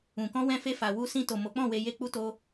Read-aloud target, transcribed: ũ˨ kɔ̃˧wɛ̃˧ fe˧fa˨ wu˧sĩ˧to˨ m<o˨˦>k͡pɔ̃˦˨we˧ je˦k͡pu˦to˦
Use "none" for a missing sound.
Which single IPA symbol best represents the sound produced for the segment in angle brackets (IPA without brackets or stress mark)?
o˨˦